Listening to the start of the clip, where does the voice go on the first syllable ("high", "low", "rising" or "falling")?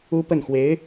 high